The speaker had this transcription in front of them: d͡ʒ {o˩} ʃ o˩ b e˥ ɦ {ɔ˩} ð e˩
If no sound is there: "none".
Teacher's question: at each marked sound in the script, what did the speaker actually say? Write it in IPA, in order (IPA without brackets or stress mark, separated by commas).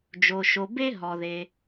o˩, ɔ˩